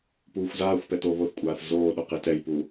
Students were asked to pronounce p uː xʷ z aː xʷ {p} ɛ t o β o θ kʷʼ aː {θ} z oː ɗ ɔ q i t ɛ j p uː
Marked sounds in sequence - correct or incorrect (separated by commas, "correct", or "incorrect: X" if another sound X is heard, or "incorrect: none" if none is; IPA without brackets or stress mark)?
correct, correct